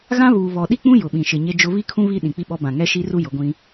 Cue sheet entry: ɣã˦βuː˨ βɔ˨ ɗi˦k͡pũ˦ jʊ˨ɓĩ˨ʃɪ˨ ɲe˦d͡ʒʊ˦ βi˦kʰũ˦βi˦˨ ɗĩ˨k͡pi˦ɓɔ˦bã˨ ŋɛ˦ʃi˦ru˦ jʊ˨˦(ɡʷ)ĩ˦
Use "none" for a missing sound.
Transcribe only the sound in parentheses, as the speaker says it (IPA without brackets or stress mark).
ɡʷ